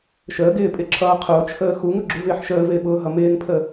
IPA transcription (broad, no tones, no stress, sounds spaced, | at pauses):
ʃ əː ɡ ɪː pʼ ɪ ǁʰ ʌː qʰ ʊː t͡ʃʰ əː x u ŋ ʊ ɡ͡ǁ u v ɪː ħ ʃ əː v ɪː ɓ ʊː ɦ ʌ m ɪː ŋ pʰ ə